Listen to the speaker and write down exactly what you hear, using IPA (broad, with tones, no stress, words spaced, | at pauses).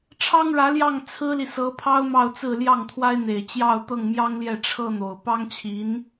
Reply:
ʈ͡ʂʰɑ˥ŋɻä˧˥ljɑ˥˩ŋ t͡sʰɹ̩˥li˨sɤ˧˥pʰɑ˥ʊ̯ mɑ˥˧ʊ̯t͡sɹ̩˥˧ ljɑ˥˩ŋt̪ʰwa˥ɪ̯n̪e˨˩ɪ̯ t͡ɕjɑ˥˧ʊ̯t̪ɤ˥˩ŋmjɑ˥ŋljɛ˥˩ ʈ͡ʂʰɤ˥n̪o˨˩ʊ̯ pɑ˥ŋt͡ɕʰi˧˥n